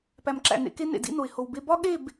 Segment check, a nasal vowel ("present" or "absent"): absent